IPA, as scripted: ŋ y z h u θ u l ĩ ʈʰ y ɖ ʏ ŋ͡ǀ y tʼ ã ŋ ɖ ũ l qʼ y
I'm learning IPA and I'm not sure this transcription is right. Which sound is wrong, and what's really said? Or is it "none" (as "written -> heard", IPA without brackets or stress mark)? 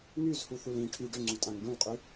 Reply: none